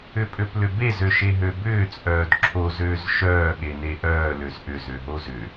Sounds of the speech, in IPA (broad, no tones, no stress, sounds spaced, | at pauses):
ʏ pʼ ø p l ʏ b e z ø ʃ e ɦ ø b ʏː t͡sʼ œː d ǁʰ o z øː z ʃ œː ɠ e n e ʔ œː l ø z ʔ ʏ z ø ɦ o z ʏ